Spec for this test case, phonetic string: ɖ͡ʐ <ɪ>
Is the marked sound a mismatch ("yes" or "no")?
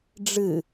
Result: yes